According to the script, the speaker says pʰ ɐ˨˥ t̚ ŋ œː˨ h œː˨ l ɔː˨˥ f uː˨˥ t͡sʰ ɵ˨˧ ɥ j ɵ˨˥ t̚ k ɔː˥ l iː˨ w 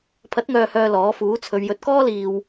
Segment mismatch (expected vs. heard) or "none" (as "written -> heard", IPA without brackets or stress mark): none